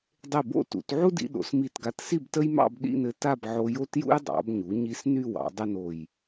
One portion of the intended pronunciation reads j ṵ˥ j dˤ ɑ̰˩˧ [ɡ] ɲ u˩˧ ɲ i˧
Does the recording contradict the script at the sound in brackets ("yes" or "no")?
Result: yes